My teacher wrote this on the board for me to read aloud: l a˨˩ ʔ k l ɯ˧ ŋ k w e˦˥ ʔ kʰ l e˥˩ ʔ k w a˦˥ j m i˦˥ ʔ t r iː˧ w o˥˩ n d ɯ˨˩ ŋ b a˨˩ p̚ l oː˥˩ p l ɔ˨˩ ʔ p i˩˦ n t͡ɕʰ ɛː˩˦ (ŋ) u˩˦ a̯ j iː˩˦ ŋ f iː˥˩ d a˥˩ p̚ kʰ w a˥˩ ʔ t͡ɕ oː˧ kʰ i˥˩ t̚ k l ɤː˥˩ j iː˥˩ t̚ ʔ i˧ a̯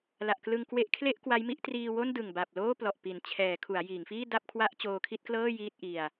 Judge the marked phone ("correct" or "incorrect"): incorrect